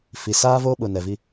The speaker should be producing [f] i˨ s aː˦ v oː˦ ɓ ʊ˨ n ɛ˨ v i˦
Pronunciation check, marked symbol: correct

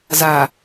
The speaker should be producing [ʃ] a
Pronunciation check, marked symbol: incorrect: z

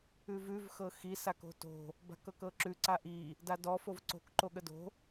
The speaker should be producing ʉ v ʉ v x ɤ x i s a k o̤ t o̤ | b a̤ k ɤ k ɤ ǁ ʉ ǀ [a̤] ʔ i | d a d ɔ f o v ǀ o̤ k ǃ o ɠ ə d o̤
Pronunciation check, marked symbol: incorrect: a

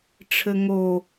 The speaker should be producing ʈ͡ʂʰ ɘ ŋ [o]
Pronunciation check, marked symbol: correct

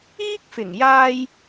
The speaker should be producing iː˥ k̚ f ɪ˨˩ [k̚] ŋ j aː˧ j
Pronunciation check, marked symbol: incorrect: none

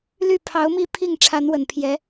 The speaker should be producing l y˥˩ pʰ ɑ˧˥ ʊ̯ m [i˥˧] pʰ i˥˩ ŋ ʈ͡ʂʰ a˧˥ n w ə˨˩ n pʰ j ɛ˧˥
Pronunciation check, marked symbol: correct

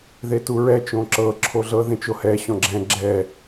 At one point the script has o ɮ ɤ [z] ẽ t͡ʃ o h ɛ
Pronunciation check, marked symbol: incorrect: ð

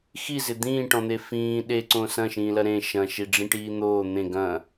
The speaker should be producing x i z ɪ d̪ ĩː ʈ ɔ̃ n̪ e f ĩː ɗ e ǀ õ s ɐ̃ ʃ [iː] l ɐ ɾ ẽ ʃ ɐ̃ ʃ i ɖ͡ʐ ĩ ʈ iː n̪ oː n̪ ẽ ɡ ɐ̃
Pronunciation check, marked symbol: incorrect: ĩː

